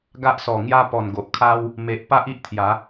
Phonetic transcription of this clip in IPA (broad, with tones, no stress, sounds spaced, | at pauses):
ɡ a˦ ʔ s ɔ˨˩ ŋ j a˦ p ɔ˨˩ n ɡ o˨ ʔ kʰ a˦ w | m e˨ ʔ p a˦ ʔ i˦ ʔ t̪ʰ j a˨˦